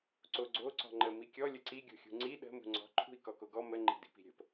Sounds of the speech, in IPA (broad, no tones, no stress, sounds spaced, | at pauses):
ǀ o ɡ͡ǀ o ǀ ɔ̤ ŋ͡ǃ ə m i kʲ ɔ lʲ ə ǀ i ɡʲ o̤ xʲ ṳ ŋ͡ǀ i ɗ ə̤ m ṳ ŋ͡ǀ ɔ̤ ǃʰ ṳ i̯ k ɔ k o ɡ ɔ m ə ŋ͡ǃ i̤ d i̤ p i̤ ɾʲ ə̤ p